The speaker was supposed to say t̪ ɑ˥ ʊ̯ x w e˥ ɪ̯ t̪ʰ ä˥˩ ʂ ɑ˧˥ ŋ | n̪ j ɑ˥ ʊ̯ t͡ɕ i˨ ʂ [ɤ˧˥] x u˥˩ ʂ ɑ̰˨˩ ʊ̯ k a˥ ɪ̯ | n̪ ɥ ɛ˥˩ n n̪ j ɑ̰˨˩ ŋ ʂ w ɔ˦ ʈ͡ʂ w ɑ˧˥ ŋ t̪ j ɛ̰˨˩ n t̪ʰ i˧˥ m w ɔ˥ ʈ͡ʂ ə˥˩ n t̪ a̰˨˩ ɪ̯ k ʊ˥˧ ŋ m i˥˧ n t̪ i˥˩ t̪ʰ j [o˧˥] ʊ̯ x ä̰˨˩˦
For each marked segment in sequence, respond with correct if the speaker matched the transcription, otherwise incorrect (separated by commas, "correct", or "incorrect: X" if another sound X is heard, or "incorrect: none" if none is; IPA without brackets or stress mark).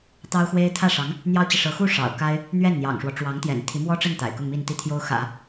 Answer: correct, incorrect: o˥